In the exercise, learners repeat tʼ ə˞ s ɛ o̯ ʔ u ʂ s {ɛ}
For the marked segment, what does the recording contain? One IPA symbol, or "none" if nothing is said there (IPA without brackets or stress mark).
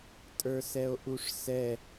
ɛ